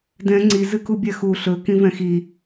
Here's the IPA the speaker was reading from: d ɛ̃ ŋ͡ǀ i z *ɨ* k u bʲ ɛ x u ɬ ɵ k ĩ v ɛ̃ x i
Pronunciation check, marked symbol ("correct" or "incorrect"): correct